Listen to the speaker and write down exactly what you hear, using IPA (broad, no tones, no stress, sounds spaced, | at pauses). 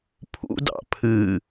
pʰ ṵ d ɑ̰ pʰ ɨ